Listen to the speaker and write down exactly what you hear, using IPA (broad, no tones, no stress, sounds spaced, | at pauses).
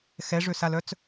x ɛ ʐ ø s a l œ t͡s